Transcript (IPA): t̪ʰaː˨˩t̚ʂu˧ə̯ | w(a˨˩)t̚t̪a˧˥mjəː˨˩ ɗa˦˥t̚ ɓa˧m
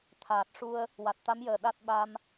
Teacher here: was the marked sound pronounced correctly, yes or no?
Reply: yes